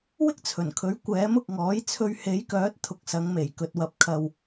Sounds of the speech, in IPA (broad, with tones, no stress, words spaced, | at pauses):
wɪ˥k̚t͡sʰɵ˨˩nkʰɵ˨˥ɥ kʷɛː˨˥mʊ˨k̚ŋɔː˨˥jt͡sʰɵ˧ɥ he˨˥jkœː˨˥t̚ t̪ʰʊ˨k̚sɐ˨˧ŋme˨˩j kɵ˨t̚wɐ˨˥p̚kʰɐ˨w